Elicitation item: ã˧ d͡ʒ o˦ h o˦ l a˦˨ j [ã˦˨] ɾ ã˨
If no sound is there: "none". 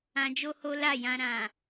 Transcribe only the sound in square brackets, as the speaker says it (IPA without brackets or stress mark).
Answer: ã˧